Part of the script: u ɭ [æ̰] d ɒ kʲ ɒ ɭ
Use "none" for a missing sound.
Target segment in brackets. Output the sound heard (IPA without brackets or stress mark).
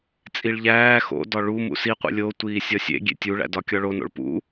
æ̰